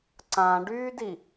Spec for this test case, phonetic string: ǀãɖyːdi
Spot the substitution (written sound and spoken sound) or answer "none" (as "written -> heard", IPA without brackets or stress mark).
none